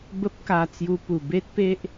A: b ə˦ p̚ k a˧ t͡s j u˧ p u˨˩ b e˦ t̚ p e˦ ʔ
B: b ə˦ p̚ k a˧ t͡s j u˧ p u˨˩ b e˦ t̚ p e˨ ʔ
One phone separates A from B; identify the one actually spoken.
A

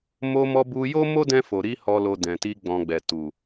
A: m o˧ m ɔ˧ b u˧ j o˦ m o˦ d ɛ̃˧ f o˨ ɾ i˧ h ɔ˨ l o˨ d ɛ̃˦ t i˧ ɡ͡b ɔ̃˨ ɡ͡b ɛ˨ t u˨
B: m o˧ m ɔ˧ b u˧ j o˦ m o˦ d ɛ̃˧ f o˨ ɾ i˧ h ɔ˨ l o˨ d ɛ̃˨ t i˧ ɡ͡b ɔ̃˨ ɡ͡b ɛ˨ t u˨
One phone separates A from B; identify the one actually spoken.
B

